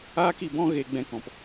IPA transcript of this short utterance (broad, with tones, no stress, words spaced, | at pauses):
aː˦ki˧bɔ̃˦ ɣe˦ ɡ͡bɛ̃˦kɔ̃˧p